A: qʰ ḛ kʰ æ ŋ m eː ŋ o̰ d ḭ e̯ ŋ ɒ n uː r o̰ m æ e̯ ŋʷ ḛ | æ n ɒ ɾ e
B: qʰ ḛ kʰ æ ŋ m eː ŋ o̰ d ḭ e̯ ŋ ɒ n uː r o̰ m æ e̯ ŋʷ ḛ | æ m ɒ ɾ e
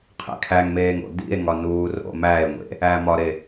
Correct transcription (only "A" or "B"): B